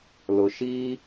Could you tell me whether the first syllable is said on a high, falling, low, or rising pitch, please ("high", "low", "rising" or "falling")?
low